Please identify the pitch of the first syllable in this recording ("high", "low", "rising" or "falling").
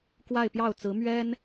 falling